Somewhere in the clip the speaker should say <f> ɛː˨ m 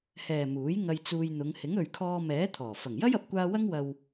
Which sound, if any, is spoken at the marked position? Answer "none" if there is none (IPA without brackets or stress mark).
h